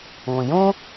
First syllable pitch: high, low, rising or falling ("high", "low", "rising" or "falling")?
low